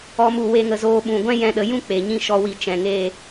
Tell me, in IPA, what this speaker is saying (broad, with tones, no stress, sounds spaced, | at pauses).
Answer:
ɔ˦ m u˦˨ w e˦ ŋ ə˧ z oː˦ ɓ ũ˨ ɡʷ ɛ̃˦ j ɛ̃˦ ɗ ə˧ j ũ˦ k͡p e˨ ɲ ĩ˧ ʃ ɔ˦ w i˦˨ t͡ʃ ɛ̃˨ ŋ e˦˨